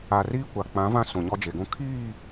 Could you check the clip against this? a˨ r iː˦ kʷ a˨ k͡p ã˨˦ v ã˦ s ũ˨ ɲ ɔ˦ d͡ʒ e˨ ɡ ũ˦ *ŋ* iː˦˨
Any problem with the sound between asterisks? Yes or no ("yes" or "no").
yes